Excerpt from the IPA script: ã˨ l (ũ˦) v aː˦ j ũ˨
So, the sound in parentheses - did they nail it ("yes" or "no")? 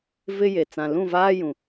no